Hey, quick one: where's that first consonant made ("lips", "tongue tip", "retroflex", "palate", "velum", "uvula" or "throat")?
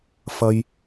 lips